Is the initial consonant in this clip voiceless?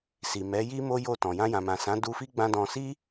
yes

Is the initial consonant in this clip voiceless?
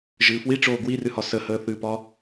no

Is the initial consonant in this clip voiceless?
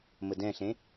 no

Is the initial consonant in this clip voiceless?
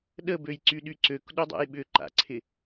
no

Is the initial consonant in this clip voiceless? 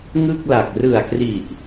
no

